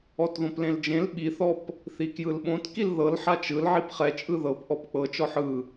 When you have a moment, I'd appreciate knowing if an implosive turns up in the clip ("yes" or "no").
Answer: yes